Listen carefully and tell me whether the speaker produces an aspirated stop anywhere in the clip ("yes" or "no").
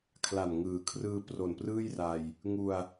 yes